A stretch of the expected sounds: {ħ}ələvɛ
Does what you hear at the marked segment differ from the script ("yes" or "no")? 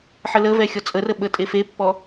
no